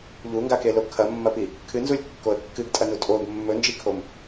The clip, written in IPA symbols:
ʎ u ŋ ɡ a k e l o kʰ ɐ mː ɐ p i | kʰ ɨ n z u lʲ kː o ə̯ kː ɨ ɡ tʼ ɐ n u tʼ o ɡ mː ɵ n d͡ʒ i kʰ o m

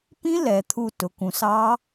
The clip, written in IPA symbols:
p ĩ˦˥ l ɛ˩˧ t̪ʰ u˧˩ t ʊ˩˧ k ũ˩˧ s ɑ˦˥

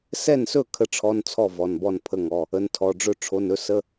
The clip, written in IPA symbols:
s ɛ˥˩ n s ɵ˥˩ kʰ ə˥˩ ʈ͡ʂʰ ɔ˧˥˧ n t͡sʰ ɔ˥˩ v ɔ˩˧˩ n b ɔ˥˩ n pʰ ə˧˥˧ ŋ ɔ˩˧˩ | ə˩˧˩ n tʰ ɔ˩˧˩ ɖ͡ʐ ɵ˥˩ ʈ͡ʂʰ o˩˧˩ n ɵ˥˩ s ə˧˥˧

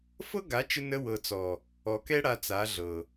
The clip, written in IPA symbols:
f ɤ˦ ɡ a˨˦ t͡ʃ ə˧ n ə˧ w ɤ˨ t͡s ɔ˨ | ɔ˨ k ɛ˦ ɽ a˧ t͡s a˨˦ ɮ ɤ˨

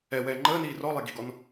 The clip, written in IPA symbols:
ɛ w ɛː ŋ͡ǃ əː n iː r ɔ lˠ e ɡ i̤ ɡ ɔ n

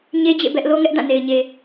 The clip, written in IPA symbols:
ɲ e˦ d͡ʑ ḛ˦˨ b ɛ˦ ʔ l o˦ ŋ ɛ˦ ʔ d ã˦˨ n e˨ ɪ̯ ɲ e˨

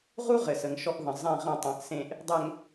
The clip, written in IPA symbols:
ʁ u˦ ʁ ɘ˨ s ə˨ ŋ ʃ ɔ˦ ʔ ð ə̃˨ zˤ ɛ̃˦˨ ʁ ə̃˦˨ tˤ ɛ̃˨ ʔ s ẽ˨ ʔ | dˤ ɛ˨ ŋ

